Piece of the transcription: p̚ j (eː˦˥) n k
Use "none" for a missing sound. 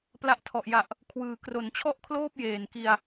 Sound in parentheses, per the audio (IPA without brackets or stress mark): eː˨˩